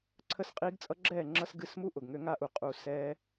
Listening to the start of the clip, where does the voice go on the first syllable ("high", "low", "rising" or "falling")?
falling